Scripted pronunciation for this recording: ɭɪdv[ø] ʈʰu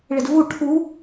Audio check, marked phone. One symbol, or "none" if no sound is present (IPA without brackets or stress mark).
u